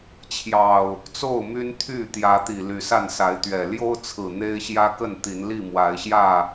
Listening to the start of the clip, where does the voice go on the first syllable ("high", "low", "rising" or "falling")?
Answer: low